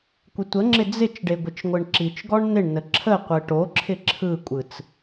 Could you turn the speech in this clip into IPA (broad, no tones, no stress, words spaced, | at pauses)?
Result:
kʷɪtʷəŋ͡ǁɪ d͡zɪt͡ʃɖe ɡʷɪt͡ʃŋʷɯɳǁit͡ʃɡɔɳ nɪɳnə ǁʰə qʷɯʈoǁʰɪ ǁʰɯkʷʼɯt͡s